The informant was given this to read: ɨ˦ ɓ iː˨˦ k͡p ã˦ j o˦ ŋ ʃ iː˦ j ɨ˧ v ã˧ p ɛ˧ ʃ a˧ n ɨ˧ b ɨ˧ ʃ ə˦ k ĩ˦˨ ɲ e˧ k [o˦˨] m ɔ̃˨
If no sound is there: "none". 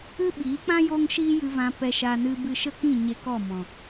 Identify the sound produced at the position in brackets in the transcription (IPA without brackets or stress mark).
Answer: ɔ˦˨